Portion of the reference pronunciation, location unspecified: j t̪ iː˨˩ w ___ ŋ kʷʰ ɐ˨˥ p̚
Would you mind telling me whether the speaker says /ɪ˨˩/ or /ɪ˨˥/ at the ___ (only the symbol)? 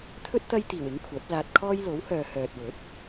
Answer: ɪ˨˥